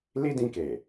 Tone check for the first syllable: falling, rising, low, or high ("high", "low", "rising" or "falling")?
high